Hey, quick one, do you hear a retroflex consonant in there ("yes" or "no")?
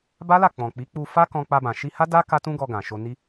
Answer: no